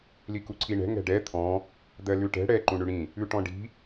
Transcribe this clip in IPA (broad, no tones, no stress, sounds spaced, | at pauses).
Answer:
l i k u ǀʰ i ɳ ɛ̤ ŋ ɛ̤ ɖ ɛ t̪ʰ ɔ̃ | d̪ ɜ l ʉ ʈ ɛ̤ ɽ ɛ ǃ ũ ɳ ʉ ɽ ĩ | ʉ ʈ ɔ̃ ɖ i̤